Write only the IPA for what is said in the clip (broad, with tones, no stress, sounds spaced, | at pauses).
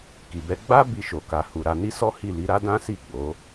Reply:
k i˨ b ɛ˧ ɡ͡b a˦ b i˧ ʃ o˨ k a˨ h u˨ ɾ a˧ n i˦ s ɔ˦ h i˦˨ l i˨˦ ɾ a˦ d ã˦ s i˦˨ ɡ͡b o˨˦